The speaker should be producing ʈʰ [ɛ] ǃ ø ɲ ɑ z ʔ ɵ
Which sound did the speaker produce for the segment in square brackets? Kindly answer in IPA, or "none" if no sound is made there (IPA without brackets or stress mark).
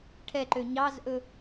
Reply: ɛ